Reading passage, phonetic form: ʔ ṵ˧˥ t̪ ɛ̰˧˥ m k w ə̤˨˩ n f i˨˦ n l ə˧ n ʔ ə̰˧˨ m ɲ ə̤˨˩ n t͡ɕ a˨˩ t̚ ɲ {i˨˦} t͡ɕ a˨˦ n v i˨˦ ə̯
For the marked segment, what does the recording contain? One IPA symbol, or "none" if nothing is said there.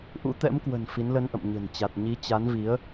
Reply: i˨˦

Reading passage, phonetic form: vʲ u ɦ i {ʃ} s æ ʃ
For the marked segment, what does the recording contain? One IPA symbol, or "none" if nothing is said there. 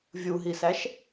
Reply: none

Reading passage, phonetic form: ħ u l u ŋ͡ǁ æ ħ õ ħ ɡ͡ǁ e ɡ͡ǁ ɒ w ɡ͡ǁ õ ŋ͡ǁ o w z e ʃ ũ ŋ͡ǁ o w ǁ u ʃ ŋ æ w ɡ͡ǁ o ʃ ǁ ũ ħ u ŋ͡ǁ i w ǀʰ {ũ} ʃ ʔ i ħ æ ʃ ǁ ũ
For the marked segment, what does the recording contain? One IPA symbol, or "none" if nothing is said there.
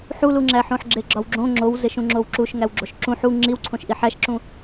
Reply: õ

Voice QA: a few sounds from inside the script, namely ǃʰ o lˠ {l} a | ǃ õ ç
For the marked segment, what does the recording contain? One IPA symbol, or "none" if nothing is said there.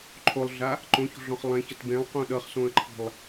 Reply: ɮ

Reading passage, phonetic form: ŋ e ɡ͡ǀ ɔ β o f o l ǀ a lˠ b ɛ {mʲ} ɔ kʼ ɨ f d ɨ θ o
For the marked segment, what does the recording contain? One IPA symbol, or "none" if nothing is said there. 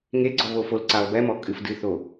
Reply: m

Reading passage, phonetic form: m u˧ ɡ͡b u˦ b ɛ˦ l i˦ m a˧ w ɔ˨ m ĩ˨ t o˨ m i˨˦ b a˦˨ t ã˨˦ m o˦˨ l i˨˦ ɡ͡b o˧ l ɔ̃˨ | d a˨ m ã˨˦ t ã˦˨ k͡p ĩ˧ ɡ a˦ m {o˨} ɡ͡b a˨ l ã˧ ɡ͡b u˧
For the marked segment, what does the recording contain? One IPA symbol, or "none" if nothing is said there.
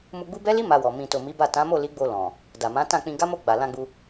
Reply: o˦˨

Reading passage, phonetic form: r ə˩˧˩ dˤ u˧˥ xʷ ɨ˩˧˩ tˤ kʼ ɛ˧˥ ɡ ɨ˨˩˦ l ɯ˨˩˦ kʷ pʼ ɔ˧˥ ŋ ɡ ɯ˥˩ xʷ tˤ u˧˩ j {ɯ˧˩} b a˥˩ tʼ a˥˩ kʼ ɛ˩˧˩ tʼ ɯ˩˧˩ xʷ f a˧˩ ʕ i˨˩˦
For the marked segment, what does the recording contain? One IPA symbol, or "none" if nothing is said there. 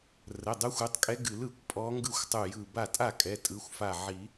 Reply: ɯ˧˩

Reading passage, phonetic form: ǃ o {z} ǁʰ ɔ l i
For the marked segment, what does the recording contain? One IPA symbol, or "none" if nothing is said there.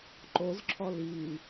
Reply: z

